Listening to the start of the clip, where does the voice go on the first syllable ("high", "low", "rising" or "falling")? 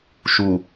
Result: low